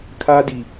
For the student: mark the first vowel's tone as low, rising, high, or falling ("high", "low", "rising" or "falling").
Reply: high